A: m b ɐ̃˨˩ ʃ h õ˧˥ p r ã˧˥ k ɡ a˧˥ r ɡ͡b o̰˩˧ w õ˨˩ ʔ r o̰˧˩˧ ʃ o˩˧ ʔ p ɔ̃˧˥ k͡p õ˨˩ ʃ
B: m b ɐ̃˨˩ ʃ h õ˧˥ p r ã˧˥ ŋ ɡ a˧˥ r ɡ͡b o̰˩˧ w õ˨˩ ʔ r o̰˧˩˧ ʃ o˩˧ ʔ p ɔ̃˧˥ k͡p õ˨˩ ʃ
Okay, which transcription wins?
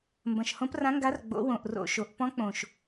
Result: B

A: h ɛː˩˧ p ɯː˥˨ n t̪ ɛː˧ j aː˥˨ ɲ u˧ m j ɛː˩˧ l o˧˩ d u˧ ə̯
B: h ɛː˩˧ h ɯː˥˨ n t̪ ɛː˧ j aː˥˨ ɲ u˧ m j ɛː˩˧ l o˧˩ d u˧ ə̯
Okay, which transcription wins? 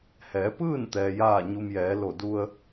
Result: A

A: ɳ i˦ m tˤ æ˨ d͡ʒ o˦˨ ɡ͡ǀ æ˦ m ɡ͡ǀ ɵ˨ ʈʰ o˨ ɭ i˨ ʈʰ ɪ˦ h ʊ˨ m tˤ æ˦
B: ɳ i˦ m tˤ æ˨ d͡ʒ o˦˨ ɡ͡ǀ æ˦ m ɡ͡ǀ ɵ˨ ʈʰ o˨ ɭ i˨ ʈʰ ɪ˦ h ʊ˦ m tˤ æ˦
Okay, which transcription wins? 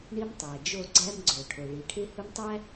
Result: B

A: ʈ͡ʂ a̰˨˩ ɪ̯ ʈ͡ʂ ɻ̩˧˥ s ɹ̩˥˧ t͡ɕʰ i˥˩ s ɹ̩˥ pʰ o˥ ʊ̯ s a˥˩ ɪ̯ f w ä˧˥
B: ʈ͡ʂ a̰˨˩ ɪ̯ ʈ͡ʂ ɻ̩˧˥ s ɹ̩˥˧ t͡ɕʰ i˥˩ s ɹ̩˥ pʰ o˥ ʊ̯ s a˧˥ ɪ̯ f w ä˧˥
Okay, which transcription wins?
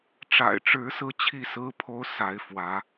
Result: B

